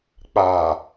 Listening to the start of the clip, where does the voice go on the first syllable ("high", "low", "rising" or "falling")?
low